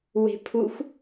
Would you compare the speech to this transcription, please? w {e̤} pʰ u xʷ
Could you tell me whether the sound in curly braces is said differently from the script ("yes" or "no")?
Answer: no